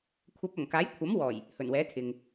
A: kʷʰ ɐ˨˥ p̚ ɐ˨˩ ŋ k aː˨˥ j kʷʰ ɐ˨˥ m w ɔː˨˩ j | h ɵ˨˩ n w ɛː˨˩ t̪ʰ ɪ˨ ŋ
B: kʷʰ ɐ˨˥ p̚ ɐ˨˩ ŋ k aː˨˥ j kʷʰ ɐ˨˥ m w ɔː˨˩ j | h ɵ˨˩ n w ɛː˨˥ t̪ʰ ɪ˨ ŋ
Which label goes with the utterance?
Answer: B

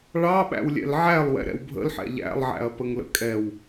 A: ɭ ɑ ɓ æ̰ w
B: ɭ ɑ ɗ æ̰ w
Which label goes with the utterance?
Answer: A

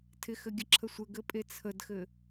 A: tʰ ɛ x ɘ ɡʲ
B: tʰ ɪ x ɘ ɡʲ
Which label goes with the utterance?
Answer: B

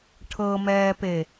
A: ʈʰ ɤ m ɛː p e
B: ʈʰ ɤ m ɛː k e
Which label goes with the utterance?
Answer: A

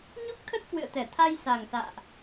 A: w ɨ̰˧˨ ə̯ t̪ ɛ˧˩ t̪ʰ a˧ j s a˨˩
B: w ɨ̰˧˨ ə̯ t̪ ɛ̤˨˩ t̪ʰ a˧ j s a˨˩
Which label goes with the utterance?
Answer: A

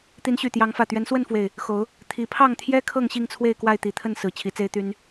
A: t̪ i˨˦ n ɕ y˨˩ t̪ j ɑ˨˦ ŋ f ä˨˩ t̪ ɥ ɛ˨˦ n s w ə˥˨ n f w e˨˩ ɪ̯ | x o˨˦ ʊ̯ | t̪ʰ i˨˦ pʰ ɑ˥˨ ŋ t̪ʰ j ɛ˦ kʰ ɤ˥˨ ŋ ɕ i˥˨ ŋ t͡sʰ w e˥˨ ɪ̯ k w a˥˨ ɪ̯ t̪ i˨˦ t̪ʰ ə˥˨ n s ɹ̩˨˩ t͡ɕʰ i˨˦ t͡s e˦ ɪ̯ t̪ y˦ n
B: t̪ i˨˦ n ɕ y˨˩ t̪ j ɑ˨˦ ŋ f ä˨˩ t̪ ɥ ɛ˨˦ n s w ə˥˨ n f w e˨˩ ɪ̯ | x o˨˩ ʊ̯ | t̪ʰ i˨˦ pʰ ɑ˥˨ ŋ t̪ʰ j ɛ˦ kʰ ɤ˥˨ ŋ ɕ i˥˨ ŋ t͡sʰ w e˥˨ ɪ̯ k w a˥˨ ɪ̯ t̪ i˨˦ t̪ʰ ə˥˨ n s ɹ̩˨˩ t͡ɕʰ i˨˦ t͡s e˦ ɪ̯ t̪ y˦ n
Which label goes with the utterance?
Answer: A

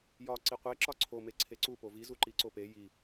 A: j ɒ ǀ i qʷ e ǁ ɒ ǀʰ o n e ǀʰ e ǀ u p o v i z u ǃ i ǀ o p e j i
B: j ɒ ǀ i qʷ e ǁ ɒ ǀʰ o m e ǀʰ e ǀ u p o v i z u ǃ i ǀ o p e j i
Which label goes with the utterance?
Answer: B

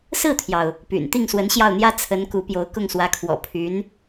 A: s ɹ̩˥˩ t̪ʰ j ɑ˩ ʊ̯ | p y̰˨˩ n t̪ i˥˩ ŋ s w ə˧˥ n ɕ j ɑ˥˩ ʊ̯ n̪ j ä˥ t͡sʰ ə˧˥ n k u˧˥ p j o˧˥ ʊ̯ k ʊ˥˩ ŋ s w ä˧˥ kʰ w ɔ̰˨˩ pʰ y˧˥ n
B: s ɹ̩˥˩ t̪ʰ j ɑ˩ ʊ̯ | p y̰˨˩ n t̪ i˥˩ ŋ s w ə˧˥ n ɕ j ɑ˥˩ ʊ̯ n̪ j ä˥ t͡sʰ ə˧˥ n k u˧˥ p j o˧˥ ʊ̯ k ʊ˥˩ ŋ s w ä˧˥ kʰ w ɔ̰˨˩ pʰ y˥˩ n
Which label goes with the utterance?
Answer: A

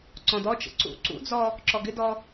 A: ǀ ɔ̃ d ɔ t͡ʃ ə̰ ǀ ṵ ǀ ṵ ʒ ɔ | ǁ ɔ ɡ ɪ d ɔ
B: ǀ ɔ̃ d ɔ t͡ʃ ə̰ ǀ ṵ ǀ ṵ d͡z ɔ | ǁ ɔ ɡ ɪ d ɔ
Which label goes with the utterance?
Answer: B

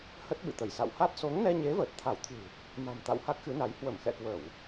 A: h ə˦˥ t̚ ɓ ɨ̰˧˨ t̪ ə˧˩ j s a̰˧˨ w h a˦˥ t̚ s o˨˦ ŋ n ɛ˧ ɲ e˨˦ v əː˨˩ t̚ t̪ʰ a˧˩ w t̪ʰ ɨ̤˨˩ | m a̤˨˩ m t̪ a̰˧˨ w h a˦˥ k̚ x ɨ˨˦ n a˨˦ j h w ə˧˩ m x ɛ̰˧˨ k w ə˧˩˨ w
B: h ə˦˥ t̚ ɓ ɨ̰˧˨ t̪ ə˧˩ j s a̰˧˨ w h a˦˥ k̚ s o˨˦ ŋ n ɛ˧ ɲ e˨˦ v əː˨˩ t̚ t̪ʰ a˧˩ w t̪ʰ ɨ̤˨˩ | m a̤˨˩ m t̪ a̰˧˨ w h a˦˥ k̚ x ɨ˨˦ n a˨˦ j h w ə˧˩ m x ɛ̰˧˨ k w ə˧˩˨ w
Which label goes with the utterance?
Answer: A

